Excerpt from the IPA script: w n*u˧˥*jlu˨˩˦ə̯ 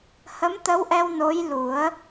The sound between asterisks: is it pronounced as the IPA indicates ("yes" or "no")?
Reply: no